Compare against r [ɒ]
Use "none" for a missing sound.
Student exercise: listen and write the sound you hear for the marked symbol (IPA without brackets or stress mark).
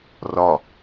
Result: ɒ